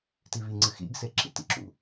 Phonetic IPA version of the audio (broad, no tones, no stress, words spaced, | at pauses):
tiβiŋ͡ǀɨ xḭɡse ǁḭtḭǁṵ